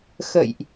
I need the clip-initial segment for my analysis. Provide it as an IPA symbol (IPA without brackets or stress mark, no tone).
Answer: x